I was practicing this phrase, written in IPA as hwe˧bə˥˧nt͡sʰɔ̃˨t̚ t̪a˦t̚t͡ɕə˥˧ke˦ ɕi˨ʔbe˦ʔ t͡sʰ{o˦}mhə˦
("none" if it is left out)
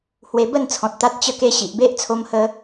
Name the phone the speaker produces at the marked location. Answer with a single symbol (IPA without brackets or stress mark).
o˦